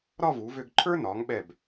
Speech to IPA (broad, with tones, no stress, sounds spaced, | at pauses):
ɾ ɒ˥˧ v u˩˧ v ø˧ ɡ ǃʰ ə˞˥ n ɒ˩˧ ŋ ɓ ɛ˧˩ b